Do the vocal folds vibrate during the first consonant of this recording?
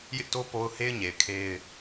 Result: yes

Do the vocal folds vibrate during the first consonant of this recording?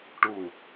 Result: no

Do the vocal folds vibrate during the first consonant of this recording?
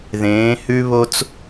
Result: yes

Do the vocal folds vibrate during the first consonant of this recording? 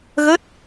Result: yes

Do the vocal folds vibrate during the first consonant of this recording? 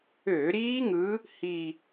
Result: yes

